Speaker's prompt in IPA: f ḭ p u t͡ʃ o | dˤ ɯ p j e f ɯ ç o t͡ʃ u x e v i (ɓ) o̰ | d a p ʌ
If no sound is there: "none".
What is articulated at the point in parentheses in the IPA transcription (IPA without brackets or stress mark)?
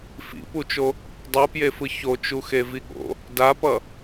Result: ɠ